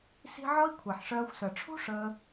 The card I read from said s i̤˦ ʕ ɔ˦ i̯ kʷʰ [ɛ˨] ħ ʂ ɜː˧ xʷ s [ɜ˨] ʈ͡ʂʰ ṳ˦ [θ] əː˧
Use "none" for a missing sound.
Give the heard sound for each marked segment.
ɛ˨, ɜ˨, ʂ

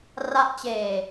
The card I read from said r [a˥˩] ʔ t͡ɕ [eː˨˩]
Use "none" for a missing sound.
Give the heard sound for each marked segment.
a˥˩, eː˨˩

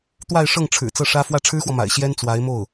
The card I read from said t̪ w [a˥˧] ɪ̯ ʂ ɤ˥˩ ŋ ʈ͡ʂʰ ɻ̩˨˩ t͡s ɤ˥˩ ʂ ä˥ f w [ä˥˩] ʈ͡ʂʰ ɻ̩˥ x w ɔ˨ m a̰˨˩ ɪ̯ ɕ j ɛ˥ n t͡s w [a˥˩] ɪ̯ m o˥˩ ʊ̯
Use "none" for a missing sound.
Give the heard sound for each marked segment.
a˥˧, ä˥˩, a˧˥

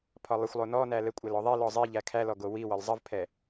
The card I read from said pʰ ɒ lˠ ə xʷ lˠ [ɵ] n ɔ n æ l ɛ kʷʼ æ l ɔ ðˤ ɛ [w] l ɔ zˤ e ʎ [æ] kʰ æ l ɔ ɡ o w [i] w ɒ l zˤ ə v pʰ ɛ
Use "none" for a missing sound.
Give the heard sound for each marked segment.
o, none, æ, i

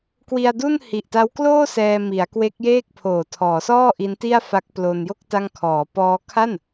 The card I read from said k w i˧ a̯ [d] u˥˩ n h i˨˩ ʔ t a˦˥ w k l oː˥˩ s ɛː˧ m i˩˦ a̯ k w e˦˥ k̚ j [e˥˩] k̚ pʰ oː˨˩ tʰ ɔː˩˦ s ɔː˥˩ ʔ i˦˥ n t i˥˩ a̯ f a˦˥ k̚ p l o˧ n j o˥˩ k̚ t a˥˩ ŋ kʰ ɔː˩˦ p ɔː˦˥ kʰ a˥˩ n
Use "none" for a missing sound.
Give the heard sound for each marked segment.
d, eː˥˩

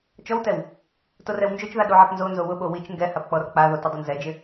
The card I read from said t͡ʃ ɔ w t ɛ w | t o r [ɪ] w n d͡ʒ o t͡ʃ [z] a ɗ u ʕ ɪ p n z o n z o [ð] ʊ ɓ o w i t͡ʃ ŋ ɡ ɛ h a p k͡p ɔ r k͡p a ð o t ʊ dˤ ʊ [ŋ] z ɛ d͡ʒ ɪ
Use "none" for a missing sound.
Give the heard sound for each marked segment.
ɛ, ð, w, n

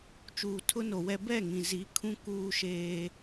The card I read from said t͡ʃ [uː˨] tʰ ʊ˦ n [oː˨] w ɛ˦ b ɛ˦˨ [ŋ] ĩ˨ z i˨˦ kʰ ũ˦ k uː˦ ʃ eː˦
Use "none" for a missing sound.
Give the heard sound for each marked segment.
uː˨, o˨, ŋ

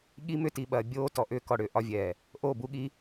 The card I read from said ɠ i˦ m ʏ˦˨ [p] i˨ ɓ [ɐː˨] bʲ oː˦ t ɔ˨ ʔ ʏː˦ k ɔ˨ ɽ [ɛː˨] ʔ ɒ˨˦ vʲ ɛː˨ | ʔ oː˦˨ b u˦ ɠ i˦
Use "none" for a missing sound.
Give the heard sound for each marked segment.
t, ɐː˨, ʏː˨

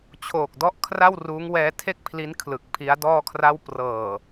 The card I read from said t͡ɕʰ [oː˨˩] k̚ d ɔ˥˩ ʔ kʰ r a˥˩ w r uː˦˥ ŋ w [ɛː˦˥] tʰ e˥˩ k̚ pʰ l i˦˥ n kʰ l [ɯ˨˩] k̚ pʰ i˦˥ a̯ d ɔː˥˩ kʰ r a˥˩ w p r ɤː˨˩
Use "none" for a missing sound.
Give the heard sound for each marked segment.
oː˨˩, ɛː˦˥, ɯ˨˩

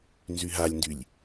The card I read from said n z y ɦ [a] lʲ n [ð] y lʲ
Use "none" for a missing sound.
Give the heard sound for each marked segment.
a, d

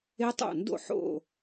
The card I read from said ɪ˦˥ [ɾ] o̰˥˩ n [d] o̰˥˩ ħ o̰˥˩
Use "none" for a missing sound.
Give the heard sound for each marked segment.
tˤ, d

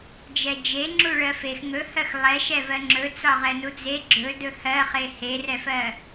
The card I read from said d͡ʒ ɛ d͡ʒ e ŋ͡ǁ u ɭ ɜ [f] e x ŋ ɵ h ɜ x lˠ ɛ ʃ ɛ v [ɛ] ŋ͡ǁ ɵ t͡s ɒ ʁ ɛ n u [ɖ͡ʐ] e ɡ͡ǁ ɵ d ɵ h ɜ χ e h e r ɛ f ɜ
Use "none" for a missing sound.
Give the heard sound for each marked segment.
f, ɜ, d͡z

